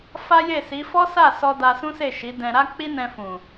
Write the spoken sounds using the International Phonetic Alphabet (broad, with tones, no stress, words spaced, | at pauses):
fa˦je˦˨si˨˦ fɔ˦sa˦˨sɔ˧ da˧sũ˦se˦˨ ʃi˨˦dɛ̃˧ɾa˦ k͡pi˦nɛ̃˧fũ˨